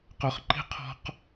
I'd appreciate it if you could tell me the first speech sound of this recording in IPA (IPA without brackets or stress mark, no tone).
q